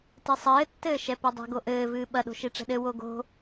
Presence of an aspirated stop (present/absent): absent